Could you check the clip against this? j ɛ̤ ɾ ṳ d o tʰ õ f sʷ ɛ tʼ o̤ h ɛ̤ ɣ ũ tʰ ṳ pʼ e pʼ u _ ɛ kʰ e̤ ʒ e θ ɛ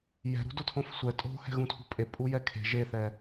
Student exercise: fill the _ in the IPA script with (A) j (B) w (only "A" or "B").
A